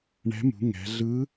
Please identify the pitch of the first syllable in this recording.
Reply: rising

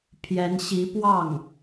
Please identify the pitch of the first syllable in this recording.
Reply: rising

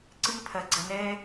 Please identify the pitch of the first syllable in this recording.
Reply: high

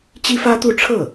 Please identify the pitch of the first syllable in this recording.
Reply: high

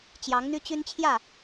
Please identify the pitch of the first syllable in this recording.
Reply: rising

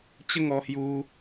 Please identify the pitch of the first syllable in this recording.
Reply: high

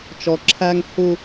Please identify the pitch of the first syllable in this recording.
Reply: low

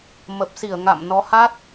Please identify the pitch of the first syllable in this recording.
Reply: low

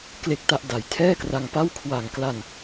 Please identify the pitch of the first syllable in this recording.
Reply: low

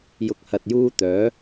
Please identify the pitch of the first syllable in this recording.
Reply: low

